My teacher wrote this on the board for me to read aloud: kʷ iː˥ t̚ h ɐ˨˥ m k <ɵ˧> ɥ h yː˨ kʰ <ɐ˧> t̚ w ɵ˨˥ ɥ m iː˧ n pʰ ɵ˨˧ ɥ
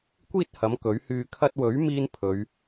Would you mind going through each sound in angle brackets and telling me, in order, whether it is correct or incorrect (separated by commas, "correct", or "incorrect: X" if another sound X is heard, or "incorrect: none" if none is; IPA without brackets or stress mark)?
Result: incorrect: ɵ˨˥, correct